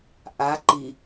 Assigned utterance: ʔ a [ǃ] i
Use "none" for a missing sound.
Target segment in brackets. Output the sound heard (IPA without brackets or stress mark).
ǃ